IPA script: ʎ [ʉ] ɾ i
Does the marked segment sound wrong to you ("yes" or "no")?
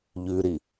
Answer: no